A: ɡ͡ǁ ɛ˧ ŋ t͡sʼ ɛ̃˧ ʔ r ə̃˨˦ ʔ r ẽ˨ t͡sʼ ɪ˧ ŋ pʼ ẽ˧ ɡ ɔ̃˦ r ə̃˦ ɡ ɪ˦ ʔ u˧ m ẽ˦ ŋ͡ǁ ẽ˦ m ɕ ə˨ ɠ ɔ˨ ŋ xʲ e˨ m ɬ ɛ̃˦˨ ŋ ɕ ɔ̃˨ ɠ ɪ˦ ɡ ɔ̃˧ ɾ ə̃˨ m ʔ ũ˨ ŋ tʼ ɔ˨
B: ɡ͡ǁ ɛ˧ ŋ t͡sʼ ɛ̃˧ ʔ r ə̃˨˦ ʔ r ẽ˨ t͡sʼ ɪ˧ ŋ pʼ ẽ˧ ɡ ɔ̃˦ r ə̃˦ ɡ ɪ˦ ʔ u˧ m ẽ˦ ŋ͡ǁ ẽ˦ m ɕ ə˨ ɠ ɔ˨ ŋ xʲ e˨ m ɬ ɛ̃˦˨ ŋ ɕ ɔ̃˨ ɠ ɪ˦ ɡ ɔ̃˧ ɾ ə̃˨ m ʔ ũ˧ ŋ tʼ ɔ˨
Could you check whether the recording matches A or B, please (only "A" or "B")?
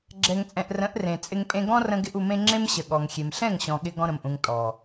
A